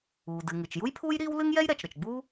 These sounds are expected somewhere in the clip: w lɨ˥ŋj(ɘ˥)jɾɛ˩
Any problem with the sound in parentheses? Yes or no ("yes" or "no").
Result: yes